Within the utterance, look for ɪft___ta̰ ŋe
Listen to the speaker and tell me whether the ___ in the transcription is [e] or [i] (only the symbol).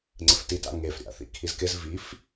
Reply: i